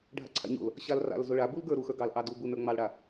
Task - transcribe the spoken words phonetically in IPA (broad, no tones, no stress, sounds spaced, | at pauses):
ɖʱ a̰ ǀʰ a̰ ɲ o̰ l | ɕ a l r a̰ l z o ɭ a b u l ɡ ə˞ ɾ u x ə˞ ɡ ɑ l ʔ ɑ d u b u n ə˞ ŋ͡m ɑ l ɽ a